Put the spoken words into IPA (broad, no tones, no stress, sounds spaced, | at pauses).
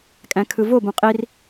kʼ æ̃ kʰ ɯ v o b ũ qʼ i r